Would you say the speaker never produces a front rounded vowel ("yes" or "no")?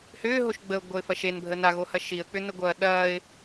no